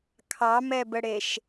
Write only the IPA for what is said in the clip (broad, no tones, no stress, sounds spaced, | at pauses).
kʰ ɑ m ɛ b ə ɽ e ʃ